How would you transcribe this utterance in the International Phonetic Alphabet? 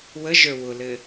w ə ʒ ə˞ w ʊ l ɘ

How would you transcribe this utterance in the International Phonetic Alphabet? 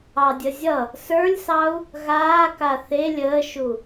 ɑ dʲ ə zʲ ʌ | s ə˞ lʲ s ɑ u̯ | ɣ aː k a θ e lʲ əː ʃ u

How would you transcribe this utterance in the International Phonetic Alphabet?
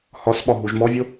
h ɒ s ɓ ɒ ɦ u ʒ m ɔ vʲ o

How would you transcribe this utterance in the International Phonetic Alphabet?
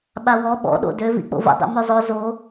ɓ a w ɔ ɓ ɔ̰ ɗ o̰ d ø v ḭ k͡p o̰ v ə̰ dˤ ḭ m ø zˤ o z o

